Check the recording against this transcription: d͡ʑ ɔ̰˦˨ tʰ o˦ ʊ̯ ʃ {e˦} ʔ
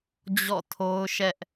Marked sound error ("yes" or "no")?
yes